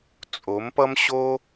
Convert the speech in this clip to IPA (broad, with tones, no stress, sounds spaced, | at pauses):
t͡sʼ o˨˦ m p ʌ˦ m ɕ o˦